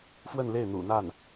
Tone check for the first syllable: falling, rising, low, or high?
falling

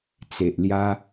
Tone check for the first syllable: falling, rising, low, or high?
low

